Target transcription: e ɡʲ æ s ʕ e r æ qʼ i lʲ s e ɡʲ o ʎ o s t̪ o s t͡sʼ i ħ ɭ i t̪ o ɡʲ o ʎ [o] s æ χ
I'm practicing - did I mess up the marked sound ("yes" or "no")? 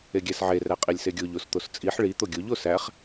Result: no